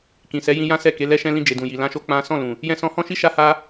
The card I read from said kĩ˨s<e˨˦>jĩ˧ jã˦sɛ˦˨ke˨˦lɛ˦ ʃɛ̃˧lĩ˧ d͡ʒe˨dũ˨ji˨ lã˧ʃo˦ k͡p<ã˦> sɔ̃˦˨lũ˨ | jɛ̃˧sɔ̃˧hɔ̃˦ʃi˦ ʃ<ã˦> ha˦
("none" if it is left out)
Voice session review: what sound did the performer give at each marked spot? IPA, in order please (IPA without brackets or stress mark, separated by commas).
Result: ɛ˨˦, ã˦, a˦